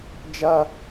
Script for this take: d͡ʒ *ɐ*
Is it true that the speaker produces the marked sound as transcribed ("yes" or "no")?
yes